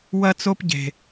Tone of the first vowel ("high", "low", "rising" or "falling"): high